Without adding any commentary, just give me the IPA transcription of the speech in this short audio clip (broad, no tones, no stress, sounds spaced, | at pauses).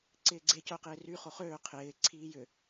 ǀ ɪː ɡ͡ǀ e c œ q ɪː r y χ o χ øː qʰ ɪː ǀʰ iː j ʏ